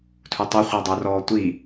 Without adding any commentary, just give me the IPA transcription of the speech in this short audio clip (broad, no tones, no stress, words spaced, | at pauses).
tʰutˤi χʷə˞dˤə˞rɔːtʷi